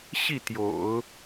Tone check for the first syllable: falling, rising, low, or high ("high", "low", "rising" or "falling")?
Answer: falling